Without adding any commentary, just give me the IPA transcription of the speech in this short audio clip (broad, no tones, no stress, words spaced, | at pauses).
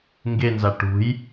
ŋɡenza ʈṳj